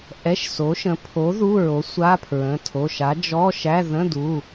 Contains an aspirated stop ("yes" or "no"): yes